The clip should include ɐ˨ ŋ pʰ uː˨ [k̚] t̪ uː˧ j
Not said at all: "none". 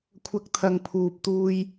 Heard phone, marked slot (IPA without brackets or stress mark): p̚